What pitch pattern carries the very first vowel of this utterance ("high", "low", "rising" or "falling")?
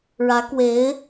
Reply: rising